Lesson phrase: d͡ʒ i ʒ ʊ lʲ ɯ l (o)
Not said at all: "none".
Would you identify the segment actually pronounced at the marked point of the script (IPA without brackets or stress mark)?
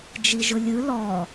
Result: ɔ